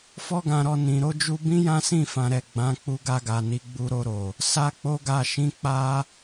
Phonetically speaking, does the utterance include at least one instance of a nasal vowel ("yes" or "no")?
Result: yes